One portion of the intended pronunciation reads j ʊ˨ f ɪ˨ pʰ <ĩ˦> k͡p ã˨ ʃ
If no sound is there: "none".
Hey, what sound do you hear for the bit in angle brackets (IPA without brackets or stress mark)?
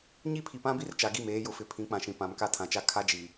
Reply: ĩ˨˦